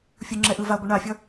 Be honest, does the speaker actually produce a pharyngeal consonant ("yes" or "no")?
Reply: no